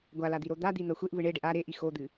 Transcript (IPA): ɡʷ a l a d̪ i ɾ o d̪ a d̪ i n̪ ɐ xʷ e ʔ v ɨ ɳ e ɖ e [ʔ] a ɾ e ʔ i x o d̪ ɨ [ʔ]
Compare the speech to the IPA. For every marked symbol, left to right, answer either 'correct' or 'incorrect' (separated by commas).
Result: correct, incorrect